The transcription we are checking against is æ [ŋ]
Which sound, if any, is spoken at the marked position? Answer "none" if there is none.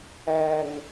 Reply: ŋ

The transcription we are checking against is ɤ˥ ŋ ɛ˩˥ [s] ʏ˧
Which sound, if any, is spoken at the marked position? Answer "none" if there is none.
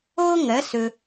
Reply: s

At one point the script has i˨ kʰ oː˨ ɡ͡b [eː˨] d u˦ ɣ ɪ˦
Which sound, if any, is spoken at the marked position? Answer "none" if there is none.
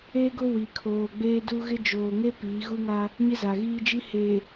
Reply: eː˦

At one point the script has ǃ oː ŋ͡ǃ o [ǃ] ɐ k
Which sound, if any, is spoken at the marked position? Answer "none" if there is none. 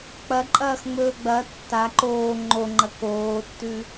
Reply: ŋ͡ǃ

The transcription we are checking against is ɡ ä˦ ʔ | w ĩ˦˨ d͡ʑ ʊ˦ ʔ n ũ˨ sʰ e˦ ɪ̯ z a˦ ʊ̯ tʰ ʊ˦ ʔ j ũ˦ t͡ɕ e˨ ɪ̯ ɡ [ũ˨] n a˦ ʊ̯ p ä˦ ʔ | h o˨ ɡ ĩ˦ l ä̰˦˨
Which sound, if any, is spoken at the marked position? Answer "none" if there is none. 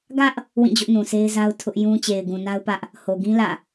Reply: ũ˨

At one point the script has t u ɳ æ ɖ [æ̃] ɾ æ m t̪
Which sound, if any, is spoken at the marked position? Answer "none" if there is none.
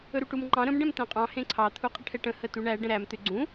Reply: ə̃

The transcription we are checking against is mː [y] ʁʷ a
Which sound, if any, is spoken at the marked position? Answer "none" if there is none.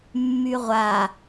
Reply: y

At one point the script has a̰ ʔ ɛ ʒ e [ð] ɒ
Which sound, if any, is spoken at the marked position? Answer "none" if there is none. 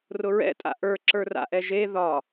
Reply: ð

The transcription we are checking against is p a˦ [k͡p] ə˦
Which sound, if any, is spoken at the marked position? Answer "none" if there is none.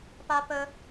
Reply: p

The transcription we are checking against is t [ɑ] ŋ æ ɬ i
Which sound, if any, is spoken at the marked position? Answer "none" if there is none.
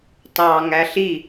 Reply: ɑ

